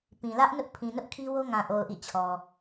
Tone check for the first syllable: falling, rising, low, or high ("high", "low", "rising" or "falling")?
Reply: low